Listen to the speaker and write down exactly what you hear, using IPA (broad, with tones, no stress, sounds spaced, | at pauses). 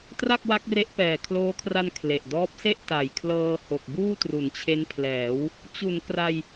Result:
t r a˥˩ k̚ w a˦˥ k̚ r e˦˥ ʔ p ɛː˨˩ kʰ l oː˦˥ kʰ r a˧ n kʰ l e˨˩ ʔ d ɔː˦˥ p̚ s e˥˩ ʔ t a˨˩ j kʰ l ɤː˧ h o˨˩ k̚ b uː˥˩ t r u˩˦ n t͡ɕʰ e˦˥ n pʰ l ɛː˩˦ w | t͡ɕ u˩˦ n k r a˧ j